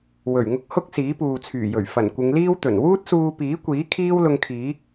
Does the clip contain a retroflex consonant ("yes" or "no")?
no